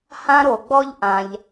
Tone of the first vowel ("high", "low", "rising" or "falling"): high